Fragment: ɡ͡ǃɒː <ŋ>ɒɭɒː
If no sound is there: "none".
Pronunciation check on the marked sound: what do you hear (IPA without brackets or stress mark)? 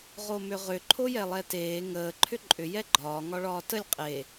ŋ